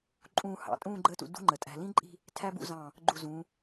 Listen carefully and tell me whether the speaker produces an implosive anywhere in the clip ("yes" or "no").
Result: no